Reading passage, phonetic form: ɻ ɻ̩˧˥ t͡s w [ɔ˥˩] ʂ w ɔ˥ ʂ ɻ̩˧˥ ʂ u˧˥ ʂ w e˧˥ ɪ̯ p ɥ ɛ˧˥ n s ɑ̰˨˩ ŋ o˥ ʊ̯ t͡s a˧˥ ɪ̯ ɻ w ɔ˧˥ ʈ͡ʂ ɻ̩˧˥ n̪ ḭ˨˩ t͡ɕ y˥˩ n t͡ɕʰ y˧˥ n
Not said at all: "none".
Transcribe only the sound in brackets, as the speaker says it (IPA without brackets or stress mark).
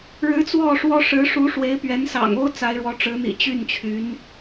ɔ˥˩